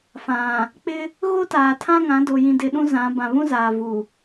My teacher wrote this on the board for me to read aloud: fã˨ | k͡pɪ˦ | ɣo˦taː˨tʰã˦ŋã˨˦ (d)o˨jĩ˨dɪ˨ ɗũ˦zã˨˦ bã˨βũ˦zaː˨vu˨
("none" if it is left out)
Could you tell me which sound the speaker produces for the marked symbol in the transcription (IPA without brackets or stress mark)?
d